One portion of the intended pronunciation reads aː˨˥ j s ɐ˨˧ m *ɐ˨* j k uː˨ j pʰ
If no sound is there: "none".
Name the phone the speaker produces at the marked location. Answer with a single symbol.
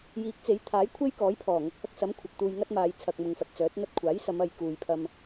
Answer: ɐ˨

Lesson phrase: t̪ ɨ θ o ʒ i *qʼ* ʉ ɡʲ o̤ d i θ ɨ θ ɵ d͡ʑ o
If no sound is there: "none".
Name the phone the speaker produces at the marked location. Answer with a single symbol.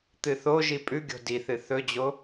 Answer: pʼ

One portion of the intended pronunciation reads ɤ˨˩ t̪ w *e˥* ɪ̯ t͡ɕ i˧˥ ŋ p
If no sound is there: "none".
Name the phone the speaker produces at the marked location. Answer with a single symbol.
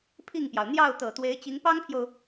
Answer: e˧˥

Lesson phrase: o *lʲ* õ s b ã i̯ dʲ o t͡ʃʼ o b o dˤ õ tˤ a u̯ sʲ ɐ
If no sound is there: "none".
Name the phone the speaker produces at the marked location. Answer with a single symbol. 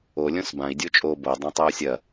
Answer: lʲ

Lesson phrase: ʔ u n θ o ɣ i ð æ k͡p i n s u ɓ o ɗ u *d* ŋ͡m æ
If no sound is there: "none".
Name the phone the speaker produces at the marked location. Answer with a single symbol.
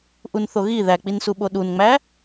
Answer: n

